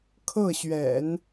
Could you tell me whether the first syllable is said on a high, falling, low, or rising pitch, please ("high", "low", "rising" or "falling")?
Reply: falling